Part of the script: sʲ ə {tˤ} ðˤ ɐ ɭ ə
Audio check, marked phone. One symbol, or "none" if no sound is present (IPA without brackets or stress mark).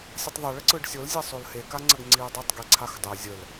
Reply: tˤ